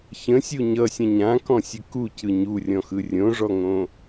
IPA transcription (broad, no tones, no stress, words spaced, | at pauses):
çə̃sʲu ɲʌsʲə̃ ɲãkɔ̃sʲə kucɯ ɲurʲɔ̃xɯ rʲõʐɔŋõ